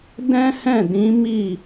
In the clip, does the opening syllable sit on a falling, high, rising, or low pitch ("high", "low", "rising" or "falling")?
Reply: high